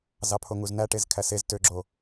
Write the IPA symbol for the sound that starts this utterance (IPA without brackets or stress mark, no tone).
z